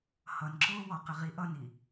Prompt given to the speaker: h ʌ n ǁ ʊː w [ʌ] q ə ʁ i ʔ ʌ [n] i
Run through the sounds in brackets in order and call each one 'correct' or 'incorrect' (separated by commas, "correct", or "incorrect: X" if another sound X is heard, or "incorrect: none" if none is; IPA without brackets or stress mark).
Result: incorrect: ɔ, correct